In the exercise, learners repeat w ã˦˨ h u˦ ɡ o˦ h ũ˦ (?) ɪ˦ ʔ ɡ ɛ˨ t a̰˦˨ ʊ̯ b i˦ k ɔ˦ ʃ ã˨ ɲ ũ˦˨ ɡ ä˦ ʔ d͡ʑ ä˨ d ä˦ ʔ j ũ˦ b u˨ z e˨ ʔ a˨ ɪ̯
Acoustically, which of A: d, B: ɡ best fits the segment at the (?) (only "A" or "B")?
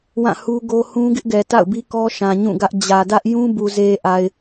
B